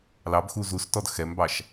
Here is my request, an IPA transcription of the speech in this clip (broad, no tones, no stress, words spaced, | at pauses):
lɑbxu zustɔd xɛmbɑʃ